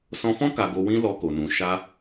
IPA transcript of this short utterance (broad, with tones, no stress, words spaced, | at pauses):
sɔ̃˧fɔ̃˦ ka˧ɡo˧wĩ˦ lɔ˧ko˨nũ˨ ʃa˧